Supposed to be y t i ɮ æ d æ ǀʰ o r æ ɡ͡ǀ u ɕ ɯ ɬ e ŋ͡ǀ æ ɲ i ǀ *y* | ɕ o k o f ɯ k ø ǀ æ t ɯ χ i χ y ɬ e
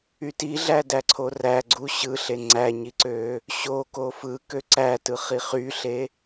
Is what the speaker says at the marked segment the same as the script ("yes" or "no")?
no